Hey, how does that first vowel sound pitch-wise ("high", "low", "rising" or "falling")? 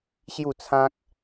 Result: falling